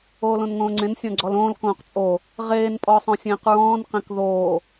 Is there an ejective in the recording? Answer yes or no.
yes